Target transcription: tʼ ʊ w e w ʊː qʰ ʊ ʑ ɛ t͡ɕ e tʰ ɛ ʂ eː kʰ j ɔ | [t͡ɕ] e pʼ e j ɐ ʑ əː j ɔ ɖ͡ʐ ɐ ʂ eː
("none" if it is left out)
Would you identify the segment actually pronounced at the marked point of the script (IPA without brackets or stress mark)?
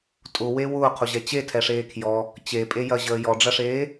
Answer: t͡ɕ